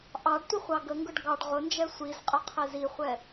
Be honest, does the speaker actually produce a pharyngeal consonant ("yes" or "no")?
no